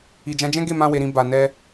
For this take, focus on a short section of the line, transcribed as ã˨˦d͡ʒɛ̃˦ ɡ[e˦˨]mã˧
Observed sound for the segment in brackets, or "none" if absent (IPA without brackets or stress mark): e˦˨